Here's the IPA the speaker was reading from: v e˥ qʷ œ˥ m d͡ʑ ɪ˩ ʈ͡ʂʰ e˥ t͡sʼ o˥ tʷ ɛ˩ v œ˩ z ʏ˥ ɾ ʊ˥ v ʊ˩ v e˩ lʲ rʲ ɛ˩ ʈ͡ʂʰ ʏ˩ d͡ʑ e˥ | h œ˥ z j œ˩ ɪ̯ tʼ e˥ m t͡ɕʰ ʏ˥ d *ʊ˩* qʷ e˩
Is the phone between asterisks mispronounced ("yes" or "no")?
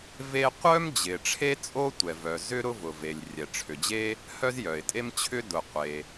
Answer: no